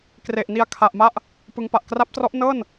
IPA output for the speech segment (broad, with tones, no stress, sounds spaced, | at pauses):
k r e˨˩ ʔ n i˧ a̯ kʰ a˨˩ ʔ m a˥˩ ʔ | p ɯ˦˥ ŋ p a˨˩ ʔ k r a˦˥ p̚ t r ɔ˦˥ ʔ n ɤː˥˩ n